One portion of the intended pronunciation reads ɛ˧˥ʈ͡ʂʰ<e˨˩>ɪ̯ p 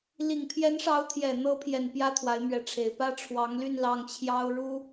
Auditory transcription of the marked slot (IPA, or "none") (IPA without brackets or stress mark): e˨˩